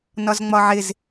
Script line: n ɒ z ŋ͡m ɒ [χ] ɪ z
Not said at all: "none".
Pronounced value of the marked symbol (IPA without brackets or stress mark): ʕ